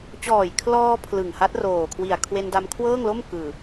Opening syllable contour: low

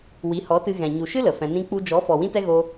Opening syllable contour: rising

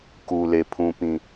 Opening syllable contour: low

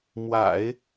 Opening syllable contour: low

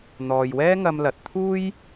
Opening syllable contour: low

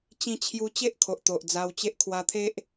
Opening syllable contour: falling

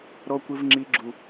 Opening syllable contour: high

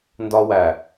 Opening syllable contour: high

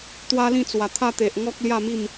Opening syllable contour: high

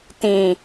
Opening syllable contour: low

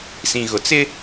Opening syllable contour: low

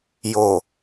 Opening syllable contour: low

